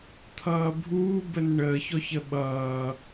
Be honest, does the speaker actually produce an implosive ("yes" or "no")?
yes